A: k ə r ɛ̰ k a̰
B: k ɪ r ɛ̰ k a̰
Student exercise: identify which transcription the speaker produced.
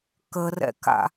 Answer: A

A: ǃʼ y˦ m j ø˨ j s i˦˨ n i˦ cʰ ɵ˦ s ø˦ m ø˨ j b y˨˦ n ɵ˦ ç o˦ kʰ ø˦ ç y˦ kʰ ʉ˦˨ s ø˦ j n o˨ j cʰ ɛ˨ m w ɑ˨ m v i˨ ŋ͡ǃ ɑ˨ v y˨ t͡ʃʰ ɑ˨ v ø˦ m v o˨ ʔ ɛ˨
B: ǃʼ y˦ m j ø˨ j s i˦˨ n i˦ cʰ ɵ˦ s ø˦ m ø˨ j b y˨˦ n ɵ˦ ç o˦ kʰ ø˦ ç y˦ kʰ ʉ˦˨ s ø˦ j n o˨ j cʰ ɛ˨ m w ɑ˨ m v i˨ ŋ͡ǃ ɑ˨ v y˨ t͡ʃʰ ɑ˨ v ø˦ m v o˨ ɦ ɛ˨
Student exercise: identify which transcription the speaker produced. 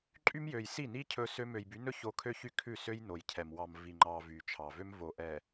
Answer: A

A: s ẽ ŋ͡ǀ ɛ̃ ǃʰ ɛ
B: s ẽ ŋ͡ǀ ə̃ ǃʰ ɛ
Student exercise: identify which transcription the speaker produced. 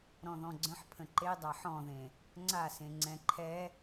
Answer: A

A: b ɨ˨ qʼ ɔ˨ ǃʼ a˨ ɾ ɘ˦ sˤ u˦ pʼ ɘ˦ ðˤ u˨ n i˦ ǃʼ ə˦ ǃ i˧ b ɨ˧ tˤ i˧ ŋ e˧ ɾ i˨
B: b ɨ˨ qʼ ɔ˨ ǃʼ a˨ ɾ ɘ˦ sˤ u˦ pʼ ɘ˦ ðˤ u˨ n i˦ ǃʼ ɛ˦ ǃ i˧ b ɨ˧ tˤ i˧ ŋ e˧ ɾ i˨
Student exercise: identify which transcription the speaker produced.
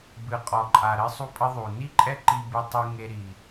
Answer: B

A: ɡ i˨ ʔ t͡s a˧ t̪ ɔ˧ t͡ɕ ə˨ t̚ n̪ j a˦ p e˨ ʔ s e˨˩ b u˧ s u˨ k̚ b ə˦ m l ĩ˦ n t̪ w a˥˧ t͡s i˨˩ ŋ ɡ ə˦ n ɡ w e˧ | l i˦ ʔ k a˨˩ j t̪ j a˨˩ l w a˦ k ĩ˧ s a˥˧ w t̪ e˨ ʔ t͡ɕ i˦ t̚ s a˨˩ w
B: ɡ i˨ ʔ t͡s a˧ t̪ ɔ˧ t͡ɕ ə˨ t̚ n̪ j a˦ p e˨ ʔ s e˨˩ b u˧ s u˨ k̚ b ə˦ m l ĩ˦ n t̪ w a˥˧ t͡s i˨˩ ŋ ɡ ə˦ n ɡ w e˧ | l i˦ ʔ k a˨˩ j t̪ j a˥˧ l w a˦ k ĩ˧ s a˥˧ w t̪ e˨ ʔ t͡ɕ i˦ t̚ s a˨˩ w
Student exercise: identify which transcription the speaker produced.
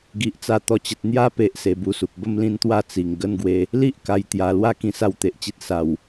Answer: A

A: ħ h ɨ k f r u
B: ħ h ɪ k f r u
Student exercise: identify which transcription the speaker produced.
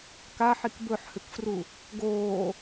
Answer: A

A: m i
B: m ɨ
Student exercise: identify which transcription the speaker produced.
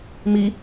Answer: A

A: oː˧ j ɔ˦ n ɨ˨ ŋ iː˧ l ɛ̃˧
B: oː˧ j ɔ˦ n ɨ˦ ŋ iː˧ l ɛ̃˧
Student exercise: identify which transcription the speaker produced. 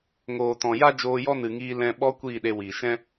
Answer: A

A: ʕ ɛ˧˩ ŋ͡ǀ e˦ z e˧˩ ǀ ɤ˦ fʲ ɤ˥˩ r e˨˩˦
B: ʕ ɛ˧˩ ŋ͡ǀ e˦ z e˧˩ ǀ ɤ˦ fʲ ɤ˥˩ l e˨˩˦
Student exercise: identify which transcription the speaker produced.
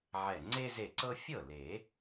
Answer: B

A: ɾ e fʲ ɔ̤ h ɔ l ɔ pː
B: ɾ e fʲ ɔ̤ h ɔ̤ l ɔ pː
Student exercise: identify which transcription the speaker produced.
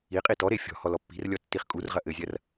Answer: A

